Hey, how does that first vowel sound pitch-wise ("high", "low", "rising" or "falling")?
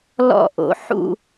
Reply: falling